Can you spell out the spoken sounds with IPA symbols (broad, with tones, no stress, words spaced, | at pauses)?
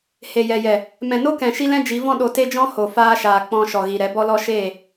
he˨jɛ˨jɛ˨ | mɛ̃˨no˦kɛ̃˨ ʃi˦lɛ̃˦d͡ʒi˨˦vɔ̃˦ ɗo˧te˦d͡ʒɔ̃˦ ho˨ faː˧ʃaː˨ k͡pɔ̃˧ʃɔ˨ɣi˨ ɾɛ˨˦bɔ˦lɔ˦ ʃeː˦˨